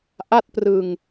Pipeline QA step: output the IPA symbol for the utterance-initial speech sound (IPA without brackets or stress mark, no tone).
ʔ